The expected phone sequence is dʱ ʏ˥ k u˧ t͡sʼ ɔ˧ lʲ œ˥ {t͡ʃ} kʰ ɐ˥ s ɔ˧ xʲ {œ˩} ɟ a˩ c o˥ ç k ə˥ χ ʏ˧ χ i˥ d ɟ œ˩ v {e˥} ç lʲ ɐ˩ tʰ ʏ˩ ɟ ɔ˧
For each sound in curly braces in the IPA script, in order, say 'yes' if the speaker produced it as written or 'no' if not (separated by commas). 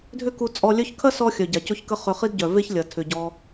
no, yes, yes